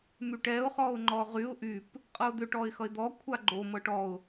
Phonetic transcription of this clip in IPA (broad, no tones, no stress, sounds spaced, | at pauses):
m y ʈ ɛ ʊ̯ χ ɔ ʊ̯ ŋ͡ǃ ɔ ʁ y ʊ̯ ʔ y p | qʼ ɤ ʊ̯ d̪ ʏ ʈ ɔ ɪ̯ x ʌ ɪ̯ d̪ ɔ kʷʰ a ɡ͡ǃ o m ɤ ʈ ɔ ʊ̯